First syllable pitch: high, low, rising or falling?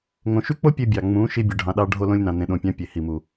low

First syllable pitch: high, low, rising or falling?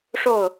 falling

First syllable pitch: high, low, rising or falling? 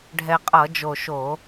low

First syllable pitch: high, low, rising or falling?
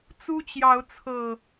high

